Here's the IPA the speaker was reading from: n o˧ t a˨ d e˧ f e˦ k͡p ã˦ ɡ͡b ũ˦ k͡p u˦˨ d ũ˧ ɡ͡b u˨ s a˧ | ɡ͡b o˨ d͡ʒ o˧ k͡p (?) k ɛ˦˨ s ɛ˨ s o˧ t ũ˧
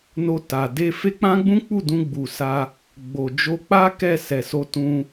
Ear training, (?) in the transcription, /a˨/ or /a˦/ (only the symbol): a˦